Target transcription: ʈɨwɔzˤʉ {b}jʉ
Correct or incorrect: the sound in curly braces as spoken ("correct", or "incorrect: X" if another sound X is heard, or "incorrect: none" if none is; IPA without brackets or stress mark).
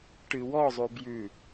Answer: correct